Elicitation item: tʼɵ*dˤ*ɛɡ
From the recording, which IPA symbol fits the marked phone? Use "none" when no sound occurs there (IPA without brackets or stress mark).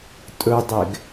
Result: dˤ